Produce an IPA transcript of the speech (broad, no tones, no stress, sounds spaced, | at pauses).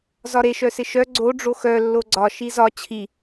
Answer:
z ɒ ɾ e ʃ œ s ɪ ʃ œ ɡ͡ǀ o ɖ͡ʐ o x œ lː o ɡ͡ǀ ɒ ʃ i z ɒ t͡ɕʰ i